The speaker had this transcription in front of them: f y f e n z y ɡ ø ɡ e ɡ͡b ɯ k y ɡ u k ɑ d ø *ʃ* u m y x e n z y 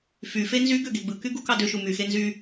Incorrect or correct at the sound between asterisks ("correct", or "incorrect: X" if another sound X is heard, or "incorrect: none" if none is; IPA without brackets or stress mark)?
correct